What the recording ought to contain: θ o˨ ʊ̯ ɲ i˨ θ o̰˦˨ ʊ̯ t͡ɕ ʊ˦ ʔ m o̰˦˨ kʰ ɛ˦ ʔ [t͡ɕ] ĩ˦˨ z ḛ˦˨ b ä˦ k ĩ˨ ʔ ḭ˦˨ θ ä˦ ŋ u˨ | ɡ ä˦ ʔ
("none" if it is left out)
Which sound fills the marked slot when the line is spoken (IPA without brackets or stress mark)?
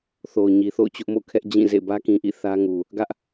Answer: d͡ʑ